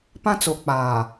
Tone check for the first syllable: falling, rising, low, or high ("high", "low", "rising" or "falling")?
high